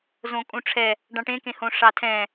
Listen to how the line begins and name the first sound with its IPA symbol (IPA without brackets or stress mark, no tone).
z